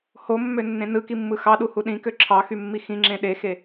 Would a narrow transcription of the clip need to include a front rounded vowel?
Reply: yes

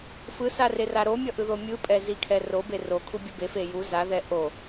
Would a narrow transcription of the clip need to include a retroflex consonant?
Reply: no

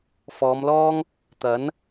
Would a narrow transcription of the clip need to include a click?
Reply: no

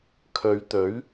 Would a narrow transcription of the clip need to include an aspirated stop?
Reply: yes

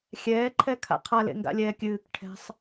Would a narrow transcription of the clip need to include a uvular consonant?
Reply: yes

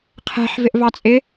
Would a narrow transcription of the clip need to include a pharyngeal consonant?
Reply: yes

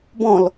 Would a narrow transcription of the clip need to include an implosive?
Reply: no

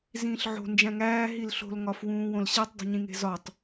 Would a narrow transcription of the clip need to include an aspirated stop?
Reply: no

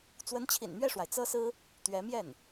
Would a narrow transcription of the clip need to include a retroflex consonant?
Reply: yes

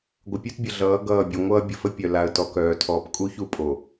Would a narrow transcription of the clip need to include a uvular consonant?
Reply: no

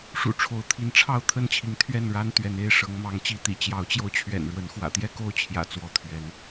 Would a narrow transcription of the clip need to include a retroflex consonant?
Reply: yes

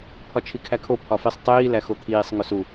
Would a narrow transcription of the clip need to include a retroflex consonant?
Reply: no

